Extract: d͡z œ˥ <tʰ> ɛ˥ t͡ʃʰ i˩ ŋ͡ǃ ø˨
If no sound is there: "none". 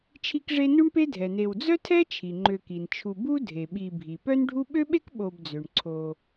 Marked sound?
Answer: tʰ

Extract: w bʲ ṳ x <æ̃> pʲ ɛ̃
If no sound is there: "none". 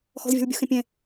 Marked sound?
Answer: ɛ̃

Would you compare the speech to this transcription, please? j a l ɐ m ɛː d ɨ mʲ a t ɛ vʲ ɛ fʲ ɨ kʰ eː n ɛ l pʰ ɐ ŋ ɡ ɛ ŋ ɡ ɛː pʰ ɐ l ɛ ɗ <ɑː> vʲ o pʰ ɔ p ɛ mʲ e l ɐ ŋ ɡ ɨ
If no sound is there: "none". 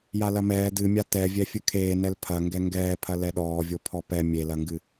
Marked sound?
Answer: ɔː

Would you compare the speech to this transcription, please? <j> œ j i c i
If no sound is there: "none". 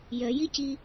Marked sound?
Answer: j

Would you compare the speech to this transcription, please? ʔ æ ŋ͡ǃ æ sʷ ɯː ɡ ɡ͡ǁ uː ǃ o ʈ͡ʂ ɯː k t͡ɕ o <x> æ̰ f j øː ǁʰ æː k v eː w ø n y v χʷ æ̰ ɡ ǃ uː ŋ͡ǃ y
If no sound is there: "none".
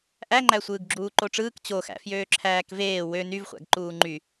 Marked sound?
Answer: x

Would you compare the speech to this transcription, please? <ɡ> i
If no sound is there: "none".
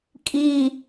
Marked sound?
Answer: kʼ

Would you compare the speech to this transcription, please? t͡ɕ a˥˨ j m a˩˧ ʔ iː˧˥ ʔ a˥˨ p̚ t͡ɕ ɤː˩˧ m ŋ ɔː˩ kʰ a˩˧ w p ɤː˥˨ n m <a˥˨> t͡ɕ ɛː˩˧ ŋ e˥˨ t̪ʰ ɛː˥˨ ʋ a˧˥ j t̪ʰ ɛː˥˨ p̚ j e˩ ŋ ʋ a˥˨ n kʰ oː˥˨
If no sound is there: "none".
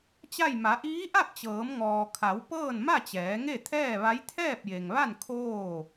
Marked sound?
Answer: a˥˨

